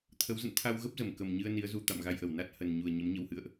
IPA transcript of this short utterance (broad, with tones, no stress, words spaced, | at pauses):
t̪ʰə˨˦wzə̰˧˨n t̪ʰa˧wɣə˦˥p̚zə˧˩m kə˨˩mɲɨ˧ə̯ ni˨˦ə̯zu˧ t̪a̰˧˨mɣa˧jʔə˧˩wna˦˥t̚ hə˨˩nɲu˨˩ə̯ ɲə˨˦mɲə˧whɨ̰˧˨ə̯ʔ